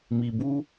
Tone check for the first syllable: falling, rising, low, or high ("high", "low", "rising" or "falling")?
low